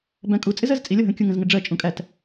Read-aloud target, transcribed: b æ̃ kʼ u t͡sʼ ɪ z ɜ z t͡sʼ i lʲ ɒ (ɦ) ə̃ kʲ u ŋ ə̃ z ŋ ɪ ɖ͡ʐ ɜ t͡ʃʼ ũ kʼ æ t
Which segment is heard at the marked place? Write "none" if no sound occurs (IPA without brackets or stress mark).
ɦ